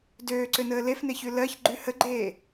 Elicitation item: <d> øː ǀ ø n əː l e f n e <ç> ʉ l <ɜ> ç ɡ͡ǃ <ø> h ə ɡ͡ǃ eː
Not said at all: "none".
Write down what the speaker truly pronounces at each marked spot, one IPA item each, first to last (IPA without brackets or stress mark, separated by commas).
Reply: d, ç, ɜ, ʉ